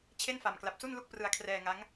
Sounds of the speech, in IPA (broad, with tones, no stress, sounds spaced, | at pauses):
t͡ɕʰ e˥˩ n f a˨˩ m k l a˨˩ p̚ s u˥˩ n l u˥˩ k̚ p r ɯ˧ a̯ kʰ r ɛː˧ ŋ a˦˥ ŋ